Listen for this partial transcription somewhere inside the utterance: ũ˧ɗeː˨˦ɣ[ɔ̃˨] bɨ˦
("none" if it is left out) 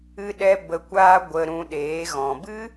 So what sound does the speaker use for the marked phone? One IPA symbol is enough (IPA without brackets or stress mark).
ɔ̃˨